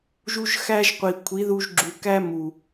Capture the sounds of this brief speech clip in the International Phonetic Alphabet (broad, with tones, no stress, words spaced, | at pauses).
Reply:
ʒu˦ʒxæ˦ʒqʷi˨ kʷʰi˨˦ðu˧ʒɡ͡ǁu˨kæ˦ mu˨